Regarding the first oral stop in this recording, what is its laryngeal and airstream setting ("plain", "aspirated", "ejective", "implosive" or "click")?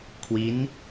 aspirated